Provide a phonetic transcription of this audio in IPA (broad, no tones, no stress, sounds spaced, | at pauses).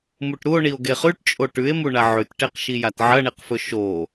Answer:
m u ʈ ɾ u o̯ ɳ i o̯ ɡ e χ ʉ ʈ t͡ʃʼ o ʈ ʉ e̯ m u ɳ a ʕ ʉ t ʈ e q ʃ i j a t ʕ ɐ ɳ i q f ɵ ʃ o